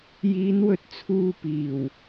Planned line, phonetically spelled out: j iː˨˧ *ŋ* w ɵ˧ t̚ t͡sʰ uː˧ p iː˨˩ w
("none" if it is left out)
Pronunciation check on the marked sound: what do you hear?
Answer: n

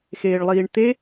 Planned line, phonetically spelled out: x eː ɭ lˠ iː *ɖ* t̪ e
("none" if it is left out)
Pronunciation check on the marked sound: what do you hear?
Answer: ɳ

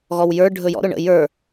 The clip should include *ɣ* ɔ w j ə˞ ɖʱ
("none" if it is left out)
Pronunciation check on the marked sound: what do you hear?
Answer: ɣ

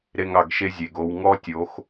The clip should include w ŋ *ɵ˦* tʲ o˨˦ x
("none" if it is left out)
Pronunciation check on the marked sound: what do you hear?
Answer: ɔ˦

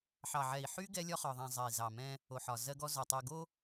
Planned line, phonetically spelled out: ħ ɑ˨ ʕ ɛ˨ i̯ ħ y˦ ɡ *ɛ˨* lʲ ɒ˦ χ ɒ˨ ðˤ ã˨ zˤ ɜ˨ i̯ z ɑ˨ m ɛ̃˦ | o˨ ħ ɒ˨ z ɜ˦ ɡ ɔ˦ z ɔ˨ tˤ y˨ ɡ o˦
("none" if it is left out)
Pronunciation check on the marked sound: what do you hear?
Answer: ɛ˦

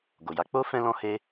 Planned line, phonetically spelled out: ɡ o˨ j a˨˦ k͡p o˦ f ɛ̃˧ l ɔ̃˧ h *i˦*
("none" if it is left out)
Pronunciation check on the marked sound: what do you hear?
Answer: e˦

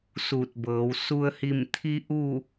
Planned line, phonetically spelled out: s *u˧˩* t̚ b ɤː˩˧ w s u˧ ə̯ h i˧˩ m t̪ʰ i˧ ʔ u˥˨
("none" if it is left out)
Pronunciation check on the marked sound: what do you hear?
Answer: u˧˩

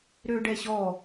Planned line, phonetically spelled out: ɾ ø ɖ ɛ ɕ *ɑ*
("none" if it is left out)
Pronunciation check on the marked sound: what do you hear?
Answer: ɔ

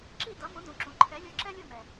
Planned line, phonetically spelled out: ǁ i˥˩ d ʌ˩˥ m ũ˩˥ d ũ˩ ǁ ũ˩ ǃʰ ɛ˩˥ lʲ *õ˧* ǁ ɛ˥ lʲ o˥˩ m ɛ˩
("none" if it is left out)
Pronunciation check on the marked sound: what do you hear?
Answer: o˧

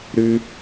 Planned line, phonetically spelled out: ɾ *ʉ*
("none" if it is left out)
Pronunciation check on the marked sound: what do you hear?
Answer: ʉ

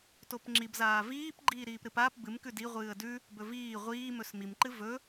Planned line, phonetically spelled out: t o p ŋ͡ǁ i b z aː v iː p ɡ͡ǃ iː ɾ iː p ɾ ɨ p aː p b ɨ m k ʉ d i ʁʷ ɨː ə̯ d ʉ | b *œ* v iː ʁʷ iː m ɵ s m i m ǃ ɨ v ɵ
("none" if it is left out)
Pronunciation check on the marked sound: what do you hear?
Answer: ɵ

